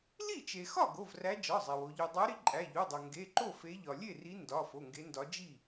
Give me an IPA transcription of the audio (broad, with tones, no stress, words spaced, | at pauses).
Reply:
li˥˩ t͡ʃe˩xɒ˥˩ ɡo˩˧˩vræ˨˦ d͡ʒɒ˩˧˩zˤe˩w o˩ʎu˩dˤæ˨˦ɾi˨˦ ǃʼæ˩˧˩ʎu˩˧˩dˤo˩ ŋɡe˩˧˩ ǃo˥˩fe˨˦ʎɒ˩ lʲe˥˩ri˨˦ ndɒ˩˧˩ fo˩˧˩ŋɡe˨˦ndɒ˨˦ d͡ʒi˥˩